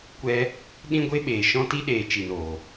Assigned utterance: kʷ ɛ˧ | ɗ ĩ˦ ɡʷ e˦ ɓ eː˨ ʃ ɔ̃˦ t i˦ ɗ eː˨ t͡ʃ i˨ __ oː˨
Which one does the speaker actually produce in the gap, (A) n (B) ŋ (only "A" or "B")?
A